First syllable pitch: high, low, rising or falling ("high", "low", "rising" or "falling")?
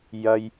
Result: low